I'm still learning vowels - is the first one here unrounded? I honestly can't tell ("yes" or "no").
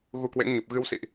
no